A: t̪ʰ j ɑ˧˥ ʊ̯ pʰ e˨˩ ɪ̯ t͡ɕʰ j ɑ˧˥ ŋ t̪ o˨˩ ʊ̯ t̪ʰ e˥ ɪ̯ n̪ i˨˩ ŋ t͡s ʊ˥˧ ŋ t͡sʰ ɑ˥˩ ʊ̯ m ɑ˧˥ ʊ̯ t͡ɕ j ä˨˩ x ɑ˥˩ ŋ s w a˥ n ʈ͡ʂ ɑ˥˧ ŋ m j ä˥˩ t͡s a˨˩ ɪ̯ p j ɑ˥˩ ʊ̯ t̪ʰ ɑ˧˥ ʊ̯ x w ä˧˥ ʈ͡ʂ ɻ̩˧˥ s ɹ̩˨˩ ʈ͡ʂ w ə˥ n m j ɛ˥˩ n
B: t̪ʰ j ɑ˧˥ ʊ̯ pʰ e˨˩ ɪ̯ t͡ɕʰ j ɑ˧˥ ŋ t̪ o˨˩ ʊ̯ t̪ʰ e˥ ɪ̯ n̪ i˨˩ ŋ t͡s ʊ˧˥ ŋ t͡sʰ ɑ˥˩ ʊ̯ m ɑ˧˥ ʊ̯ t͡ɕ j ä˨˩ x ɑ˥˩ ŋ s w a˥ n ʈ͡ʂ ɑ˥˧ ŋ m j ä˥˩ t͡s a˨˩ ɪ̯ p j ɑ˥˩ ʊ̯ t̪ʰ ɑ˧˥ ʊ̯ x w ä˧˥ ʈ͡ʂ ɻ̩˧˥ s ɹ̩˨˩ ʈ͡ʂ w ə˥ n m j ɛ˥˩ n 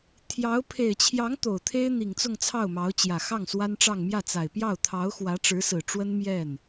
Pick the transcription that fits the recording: A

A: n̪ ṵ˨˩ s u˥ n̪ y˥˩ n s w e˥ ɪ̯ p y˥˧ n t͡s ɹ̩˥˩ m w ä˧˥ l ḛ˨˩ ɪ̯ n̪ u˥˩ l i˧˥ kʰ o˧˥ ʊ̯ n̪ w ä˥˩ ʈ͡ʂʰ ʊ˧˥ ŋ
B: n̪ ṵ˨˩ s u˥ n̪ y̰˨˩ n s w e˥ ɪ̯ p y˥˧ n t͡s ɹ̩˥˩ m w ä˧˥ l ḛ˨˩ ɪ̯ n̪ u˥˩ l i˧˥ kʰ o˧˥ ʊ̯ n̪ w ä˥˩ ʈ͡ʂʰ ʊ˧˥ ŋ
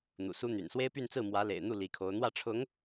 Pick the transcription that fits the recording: B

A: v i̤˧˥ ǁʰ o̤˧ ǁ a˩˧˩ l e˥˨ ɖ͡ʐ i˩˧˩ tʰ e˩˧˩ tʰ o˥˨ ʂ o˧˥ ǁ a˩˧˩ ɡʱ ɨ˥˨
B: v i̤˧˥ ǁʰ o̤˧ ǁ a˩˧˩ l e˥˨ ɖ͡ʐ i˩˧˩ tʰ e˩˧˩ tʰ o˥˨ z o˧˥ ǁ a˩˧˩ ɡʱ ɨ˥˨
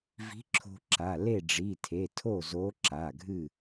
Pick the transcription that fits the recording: B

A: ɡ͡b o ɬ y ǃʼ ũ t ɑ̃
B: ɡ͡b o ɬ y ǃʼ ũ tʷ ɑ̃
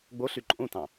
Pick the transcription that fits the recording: A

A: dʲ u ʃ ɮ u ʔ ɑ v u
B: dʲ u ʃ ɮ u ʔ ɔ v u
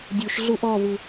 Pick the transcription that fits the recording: B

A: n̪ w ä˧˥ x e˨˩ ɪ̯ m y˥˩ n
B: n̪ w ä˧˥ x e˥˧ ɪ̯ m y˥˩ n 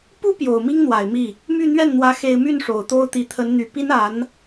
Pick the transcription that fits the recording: A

